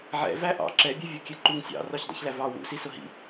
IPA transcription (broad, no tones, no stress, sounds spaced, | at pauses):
ʕ ɛ̰ v æ ʔ ɑ̰ ǁ ɛ bʲ æ vʲ ɔ kʲ ɛ ǃ u ŋ sʲ ɑ̰ r ɔ ç dˤ ɛ̰ ç l æ v ɑ w ṵ s i s ʊ ɦ ḭ